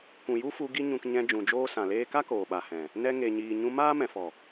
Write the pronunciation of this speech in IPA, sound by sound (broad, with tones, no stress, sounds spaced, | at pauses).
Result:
kʷ ũ˨ j u˦ f u˧ ɡ i˦ ɲ ũ˧ k ɲ ɛ̃˧ d͡ʒ ũ˨ d͡ʒ oː˧ s ã˨ l eː˧ k a˦ k oː˨ ɓ a˨ h ɛ̃˨ | n ɛ˧ ŋ e˨ ɲ iː˨ ɲ ũ˧ m aː˦ m ɛ̃˨ f ɔ˨